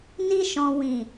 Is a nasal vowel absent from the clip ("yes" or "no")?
no